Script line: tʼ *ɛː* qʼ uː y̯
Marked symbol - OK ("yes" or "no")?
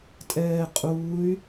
yes